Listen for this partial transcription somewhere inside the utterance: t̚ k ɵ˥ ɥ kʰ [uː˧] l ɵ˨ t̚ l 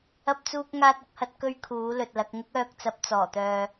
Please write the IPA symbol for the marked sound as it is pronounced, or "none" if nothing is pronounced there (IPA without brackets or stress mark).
uː˨˥